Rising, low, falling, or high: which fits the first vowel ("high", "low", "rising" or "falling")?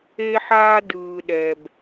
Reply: high